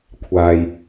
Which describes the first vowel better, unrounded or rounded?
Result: unrounded